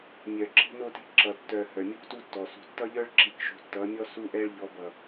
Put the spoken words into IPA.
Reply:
mʲœ˨ ǁi̤˦no˦ti̤˦ ǁʌ˨ tːœ˨ hœ˨mʲu˦ktu˦tːɔ˨ sṳ˨tːʌ˦ʎœ˦ɭ ǁi˨kʃṳ˨tːʌ˨˦mʲɔ˦ su˦ʔɛ˦ɭ ʎɔ˨˦bʌ˨

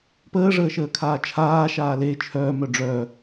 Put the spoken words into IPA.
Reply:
pəːʐəːʃəːkʰaː t͡ʃʰaːʃaː le t͡ʃʰœːmœ ɖ͡ʐœ

